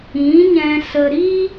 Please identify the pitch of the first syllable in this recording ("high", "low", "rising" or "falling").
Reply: rising